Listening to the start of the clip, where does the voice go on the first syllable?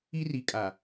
high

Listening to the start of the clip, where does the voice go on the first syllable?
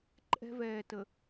high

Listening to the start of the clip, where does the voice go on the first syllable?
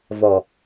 low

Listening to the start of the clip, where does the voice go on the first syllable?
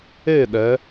falling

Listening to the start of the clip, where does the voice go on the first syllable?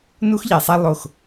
high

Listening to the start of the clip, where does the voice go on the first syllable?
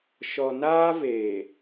low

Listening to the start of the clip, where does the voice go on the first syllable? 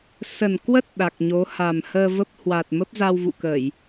low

